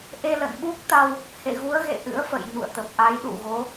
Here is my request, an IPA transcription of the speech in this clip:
ʔ e˧ l ə̰˧˨ n ɓ u˦˥ k̚ t̪ a˧ w | h ḛ˧˨ ɣ u˨˦ ə̯ ɣ ḛ˧˨ ʔ ɨ̰˧˥ ə̯ f ə̰˧˨ j ɲ ṵ˧˨ ə̯ t̪ ə˨˩ p̚ ʔ a˨˦ j ɗ ṵ˧˨ ɣ o˨˦

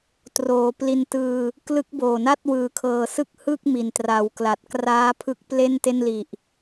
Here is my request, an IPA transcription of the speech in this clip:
t r oː˩˦ p l i˧ n t ɯː˧ | k l ɯ˦˥ k̚ b oː˨˩ n a˥˩ t̚ w ɯː˨˩ kʰ ɤː˨˩ s ɯ˦˥ k̚ h ɯ˥˩ k̚ m i˨˩ n t r a˩˦ w k l a˨˩ t̚ k r aː˦˥ pʰ ɯ˦˥ k̚ p l e˥˩ n t e˥˩ n l i˨˩ ʔ

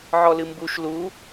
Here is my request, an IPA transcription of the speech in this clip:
ʕ ɔ l ɨ m b u ʃ l u

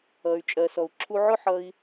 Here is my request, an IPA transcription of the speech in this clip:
ʌ˩ y̯ t͡ʃʼ ɜ˩ s ɔ˩ u̯ ǁʰ u˧ ʕ ʊ˥ ħ ʌ˧ i̯

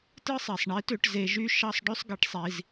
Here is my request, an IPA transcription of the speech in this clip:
t ɯ˦ sˤ i˨ sˤ ɳ i˨˦ t ø˧ ʈ z e˧ ʒ y˦ ʃ ɑ˦ sˤ ɖ ø˦ sˤ ɡ i˧ ʈ sˤ i˧ z

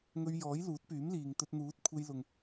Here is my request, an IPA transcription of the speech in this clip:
ŋ ɵ˧ ɥ j ɔː˨˥ j l uː˨˥ t̚ p yː˨˥ m l iː˨ ŋ t̪ ɵ˧ t̚ n̪ uː˨˥ t̚ kʷʰ e˧ j l ʊ˨ ŋ

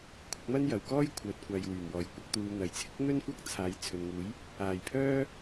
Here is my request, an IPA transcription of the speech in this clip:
kʷʰ ɪ˨˥ k̚ m ɐ˥ n j ɐ˨ w k ɔː˥ j kʷʰ œː˨ t̚ kʷ aː˨ j w yː˨˩ m w ɔː˨˩ j kʷ ɐ˨˥ k̚ t̪ uː˨ n̪ ɐ˨˩ j t͡sʰ ɪ˥ k̚ n̪ ɵ˥ n kʷ ɐ˥ k̚ t͡sʰ aː˨˥ j t͡sʰ ɵ˨ n ŋ uː˨˥ j | aː˨˩ j pʰ œː˥

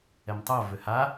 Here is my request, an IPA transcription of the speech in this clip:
ɛ m tˤ o v ʏ h a

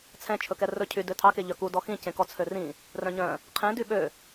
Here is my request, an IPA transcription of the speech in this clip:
t͡sʰ ɛ̃ t͡ʃʰ ɵ k ɛ r ɵ cʰ y d ø tʰ ɑ k e ʎ œ k u d ɔ x ĩ c ẽ k ɔ t͡sʰ ø r ĩ | r œ̃ ɲ œ̃ | qʰ ẽ d y ɓ ø

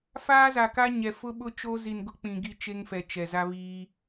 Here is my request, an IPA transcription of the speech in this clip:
f aː˦ z a˨ k a˦ ɲ ɛ˨ f ʊ˦ ɓ ʊ˦ t͡ʃ o˦ z i˨ n ɡ ʊ˦ k͡p ĩ˨ ɡ i˦ t͡ʃ e˦ ŋ f ɛ˨ t͡ʃ ɛ˨ z a˦ β iː˦

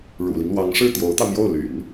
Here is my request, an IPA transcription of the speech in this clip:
ɻ ṵ˨˩ l i˦ ŋ l w ɑ˧˥ ŋ ʂ ɻ̩˥˩ t̪ j o˧˥ ʊ̯ t̪ ɑ˧ ʊ̯ m j o˥˩ ʊ̯ l y̰˨˩˦ n

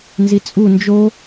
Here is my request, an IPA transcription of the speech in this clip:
n z i t͡sʼ u n d͡ʒ o

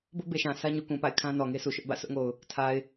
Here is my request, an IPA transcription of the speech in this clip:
b ʊ˦ ʔ b e˨ ʃ ã˨ sʰ ä˦ ɲ u˨ k ũ˨ p a̰˦˨ ɪ̯ kʰ ã˦ n ɔ˨ ŋ e˦ s u˨ ʃ ʊ˦ ʔ b ä̰˦˨ sʰ ʊ˦ ʔ ŋ o˨ ʊ̯ | tʰ a˨ ɪ̯

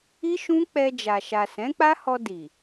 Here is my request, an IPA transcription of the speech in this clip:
i˦ ʃ ũ˦ k͡p ɛ˧ d͡ʒ a˨ ʃ a˨ s ɛ̃˨˦ k͡p a˦ h ɔ˧ d i˨

